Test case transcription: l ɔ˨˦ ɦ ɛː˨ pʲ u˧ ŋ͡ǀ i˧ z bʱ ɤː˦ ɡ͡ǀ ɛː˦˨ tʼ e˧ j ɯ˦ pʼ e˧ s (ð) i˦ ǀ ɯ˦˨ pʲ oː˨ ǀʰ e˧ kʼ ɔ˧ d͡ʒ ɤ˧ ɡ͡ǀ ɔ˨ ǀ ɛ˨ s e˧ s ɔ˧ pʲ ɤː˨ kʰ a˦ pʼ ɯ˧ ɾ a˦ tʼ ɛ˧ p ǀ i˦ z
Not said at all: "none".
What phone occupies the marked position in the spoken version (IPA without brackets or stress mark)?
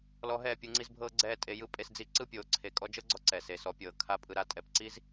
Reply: d͡z